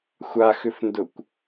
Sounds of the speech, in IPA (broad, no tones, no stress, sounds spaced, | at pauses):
xʷ a x ʏ f n d ʊ kʷ